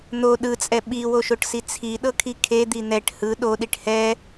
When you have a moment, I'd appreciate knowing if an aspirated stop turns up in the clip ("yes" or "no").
yes